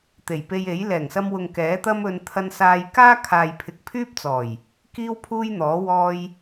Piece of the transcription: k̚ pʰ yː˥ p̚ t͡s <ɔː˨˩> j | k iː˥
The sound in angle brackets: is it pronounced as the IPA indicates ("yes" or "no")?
yes